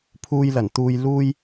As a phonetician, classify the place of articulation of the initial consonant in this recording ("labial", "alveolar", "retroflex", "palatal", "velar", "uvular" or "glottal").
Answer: labial